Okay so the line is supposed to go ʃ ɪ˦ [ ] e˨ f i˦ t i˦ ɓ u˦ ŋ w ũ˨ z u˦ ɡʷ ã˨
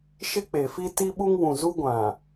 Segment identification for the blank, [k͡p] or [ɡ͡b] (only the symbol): k͡p